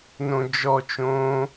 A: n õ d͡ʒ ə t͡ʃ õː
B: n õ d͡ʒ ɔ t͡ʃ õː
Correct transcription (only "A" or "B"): B